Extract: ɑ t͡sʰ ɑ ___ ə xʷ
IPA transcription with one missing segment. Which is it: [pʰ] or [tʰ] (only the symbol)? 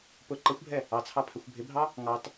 pʰ